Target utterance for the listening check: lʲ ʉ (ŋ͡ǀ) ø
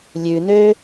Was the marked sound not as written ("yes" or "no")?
yes